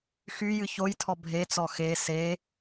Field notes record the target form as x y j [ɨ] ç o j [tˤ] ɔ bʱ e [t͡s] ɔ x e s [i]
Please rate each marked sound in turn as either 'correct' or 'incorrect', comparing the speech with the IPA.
correct, incorrect, correct, incorrect

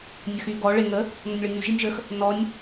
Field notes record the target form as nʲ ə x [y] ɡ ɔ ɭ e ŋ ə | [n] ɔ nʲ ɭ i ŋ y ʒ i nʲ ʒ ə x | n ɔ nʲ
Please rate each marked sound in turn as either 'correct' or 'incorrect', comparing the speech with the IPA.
correct, correct

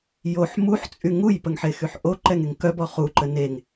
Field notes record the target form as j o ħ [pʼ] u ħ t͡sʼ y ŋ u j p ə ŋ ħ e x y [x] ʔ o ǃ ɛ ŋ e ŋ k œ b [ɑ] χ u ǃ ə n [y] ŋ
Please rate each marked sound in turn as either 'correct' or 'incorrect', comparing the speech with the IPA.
incorrect, incorrect, incorrect, incorrect

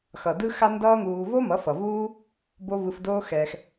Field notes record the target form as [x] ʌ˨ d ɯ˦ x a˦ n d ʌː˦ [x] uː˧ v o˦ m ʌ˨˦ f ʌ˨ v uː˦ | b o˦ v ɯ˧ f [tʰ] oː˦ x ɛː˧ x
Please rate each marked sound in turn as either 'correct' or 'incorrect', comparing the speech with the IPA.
correct, incorrect, incorrect

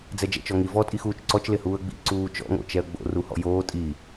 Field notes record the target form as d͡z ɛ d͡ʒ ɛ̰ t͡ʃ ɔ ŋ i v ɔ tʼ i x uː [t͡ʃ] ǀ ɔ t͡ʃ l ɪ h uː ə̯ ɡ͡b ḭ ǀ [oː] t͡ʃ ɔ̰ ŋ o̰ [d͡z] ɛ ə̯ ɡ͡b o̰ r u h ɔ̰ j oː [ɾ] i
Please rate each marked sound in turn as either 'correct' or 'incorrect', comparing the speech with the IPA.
correct, incorrect, incorrect, incorrect

